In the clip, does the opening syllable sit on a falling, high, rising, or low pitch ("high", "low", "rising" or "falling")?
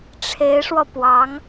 rising